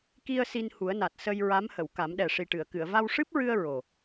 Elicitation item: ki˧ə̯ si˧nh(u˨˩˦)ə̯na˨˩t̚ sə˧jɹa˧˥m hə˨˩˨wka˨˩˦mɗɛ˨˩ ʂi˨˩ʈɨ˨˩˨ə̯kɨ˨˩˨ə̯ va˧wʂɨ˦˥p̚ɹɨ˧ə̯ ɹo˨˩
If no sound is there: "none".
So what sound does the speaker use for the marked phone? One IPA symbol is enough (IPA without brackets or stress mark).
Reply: u˨˩˦